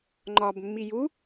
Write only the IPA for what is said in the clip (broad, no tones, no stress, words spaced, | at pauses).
ŋ͡ǃɒb mːiju